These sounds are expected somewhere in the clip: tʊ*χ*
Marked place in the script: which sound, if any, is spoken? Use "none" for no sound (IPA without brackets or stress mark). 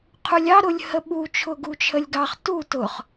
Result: χ